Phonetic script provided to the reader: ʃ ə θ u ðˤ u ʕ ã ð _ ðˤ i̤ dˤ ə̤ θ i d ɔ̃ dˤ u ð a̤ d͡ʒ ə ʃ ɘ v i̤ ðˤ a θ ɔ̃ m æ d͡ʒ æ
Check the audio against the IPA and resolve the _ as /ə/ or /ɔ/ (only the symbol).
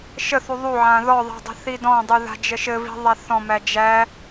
ɔ